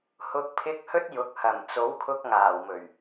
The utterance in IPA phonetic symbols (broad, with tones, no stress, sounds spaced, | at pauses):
h ʊ˨ k̚ pʰ ɪ˨˥ k̚ h ɵ˧ t̚ j ʊ˨ k̚ h ɐ˨˩ m t͡s o˨˥ w kʰ ʊ˧ k̚ ŋ aː˨˩ w m ɵ˨˩ ɥ